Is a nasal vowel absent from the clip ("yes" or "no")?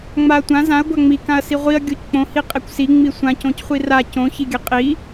no